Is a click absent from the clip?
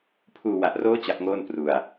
yes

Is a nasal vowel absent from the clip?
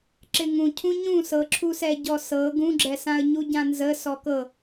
no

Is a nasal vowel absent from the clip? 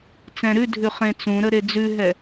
no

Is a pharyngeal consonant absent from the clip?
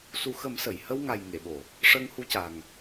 yes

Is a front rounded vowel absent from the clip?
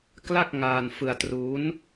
yes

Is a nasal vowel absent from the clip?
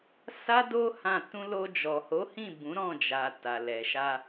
no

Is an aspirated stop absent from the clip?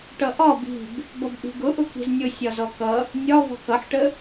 yes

